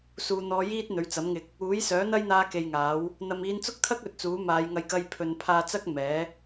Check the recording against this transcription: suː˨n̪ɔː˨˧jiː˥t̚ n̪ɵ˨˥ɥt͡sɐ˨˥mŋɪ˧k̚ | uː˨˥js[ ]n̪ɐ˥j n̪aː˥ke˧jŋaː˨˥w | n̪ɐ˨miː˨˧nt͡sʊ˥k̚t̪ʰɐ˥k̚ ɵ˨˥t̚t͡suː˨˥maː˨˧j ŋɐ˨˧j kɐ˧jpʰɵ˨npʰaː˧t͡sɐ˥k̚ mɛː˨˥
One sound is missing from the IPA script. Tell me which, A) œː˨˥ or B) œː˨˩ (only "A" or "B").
A